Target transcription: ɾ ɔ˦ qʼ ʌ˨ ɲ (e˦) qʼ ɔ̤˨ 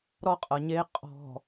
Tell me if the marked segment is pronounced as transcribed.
yes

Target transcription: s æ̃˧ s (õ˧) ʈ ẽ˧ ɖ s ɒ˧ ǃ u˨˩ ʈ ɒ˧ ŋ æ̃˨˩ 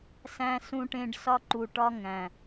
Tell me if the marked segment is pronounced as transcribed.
no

